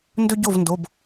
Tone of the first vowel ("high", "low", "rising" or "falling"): high